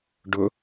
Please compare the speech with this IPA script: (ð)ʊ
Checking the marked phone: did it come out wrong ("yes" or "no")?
yes